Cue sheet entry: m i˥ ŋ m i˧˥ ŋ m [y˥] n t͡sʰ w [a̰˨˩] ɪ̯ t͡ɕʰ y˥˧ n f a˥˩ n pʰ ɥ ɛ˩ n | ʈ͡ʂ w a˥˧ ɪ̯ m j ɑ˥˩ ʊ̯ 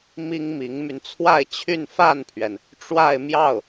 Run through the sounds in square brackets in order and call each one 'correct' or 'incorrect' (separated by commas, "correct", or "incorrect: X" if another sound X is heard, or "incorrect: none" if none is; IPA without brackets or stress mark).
incorrect: y˧, incorrect: a˥˧